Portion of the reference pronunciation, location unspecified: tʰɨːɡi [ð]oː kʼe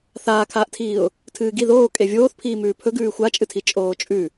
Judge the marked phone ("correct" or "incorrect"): correct